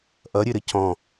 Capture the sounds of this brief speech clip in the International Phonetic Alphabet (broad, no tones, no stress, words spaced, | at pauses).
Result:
ʔʌɾʲɘɾɘ cɔ̃